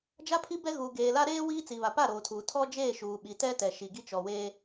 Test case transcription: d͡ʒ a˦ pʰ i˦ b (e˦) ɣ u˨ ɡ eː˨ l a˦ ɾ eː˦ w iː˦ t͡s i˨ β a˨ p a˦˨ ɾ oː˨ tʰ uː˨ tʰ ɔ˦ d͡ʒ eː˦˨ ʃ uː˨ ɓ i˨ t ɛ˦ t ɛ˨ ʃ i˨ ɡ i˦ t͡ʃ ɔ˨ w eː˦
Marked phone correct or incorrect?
incorrect